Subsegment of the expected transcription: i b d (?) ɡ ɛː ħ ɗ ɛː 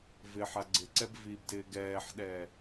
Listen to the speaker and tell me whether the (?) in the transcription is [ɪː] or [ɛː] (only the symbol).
ɪː